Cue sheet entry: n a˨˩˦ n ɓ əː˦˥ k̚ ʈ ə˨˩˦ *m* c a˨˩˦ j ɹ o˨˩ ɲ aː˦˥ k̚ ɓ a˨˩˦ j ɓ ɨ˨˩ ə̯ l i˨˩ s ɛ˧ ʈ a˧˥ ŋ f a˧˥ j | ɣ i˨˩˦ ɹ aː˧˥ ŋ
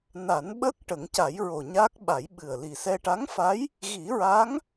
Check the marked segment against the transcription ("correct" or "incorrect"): incorrect